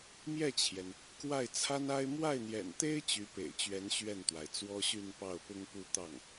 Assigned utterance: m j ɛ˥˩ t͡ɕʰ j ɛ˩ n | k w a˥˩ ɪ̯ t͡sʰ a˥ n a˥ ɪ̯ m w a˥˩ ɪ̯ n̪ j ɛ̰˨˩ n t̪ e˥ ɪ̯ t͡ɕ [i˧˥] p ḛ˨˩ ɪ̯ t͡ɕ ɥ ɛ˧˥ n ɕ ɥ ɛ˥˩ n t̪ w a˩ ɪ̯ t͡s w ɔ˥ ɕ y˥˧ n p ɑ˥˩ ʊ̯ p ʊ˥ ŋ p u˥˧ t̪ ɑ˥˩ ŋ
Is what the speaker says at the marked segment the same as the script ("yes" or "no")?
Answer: no